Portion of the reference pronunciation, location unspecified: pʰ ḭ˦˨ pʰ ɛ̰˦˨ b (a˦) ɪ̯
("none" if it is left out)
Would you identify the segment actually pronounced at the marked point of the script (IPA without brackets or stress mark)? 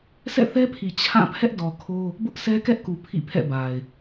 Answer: a˨